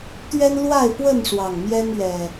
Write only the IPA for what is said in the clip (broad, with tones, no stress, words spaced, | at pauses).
t̪ɥɛ˦nlwa˥˨ɪ̯pwə˥˨nʂwɑ˨˩ŋ mjɛ˦n ɥɛ˨˩